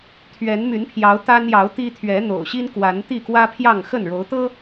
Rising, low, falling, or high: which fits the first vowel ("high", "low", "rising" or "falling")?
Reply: rising